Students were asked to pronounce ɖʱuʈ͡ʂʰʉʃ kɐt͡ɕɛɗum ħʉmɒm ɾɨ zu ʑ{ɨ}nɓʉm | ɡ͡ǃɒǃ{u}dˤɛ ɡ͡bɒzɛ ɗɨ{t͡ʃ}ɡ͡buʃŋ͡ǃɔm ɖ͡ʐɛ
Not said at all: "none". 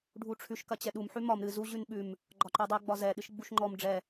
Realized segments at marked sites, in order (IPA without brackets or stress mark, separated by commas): ʉ, ʉ, ʃ